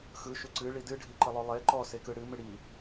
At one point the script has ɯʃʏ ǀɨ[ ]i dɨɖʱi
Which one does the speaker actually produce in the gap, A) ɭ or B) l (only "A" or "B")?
A